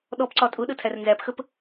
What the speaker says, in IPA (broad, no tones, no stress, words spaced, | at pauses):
ɗɔpǀɒ tʼʊɗətʰær nzæpxəp